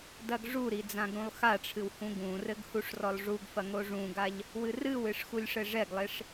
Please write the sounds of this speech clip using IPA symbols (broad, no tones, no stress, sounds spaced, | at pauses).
d ɐ ɡ ʐ u ɾ i d͡z ã ɡ ɾ ũ lˠ x a ʈ͡ʂʰ ɨ w h ũ ɡ ũ r ɘ ɡ h u ʂ r ɔ lˠ ʐ u ɡ f ɐ ŋ o ʐ ũ ɡ a ʎ | w ɨ r ɨ w ɨ ʂ x u lʲ ʂ ɘ ʐ ɛ ɡ lˠ e ʂ